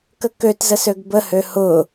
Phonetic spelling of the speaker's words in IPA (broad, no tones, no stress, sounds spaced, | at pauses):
k ə k ø t z ə s ø ɡ b ə h ø h ʊ